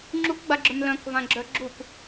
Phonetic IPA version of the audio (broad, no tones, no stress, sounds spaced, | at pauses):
ŋ͡ǁ u k ɡ͡b a ɡ͡ǁ œ m l œ̃ k v ã ɡ͡ǁ œ ɡ͡ǁ u k